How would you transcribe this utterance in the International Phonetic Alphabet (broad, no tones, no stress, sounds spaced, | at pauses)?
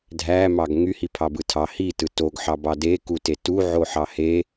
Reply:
dʱ æ m ɑ ɡ ŋ y h i pʰ ɑ b ɯ tʰ ɑ h i t ɯ t o ɡ ħ ɑ b ɑ d e k u t e t u ʕ o ħ ɑ h e